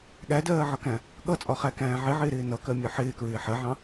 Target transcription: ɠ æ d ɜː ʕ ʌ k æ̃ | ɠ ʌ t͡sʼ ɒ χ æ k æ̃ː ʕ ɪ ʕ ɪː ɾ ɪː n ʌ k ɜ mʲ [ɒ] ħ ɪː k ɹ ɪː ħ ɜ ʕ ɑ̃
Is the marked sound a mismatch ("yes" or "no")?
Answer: no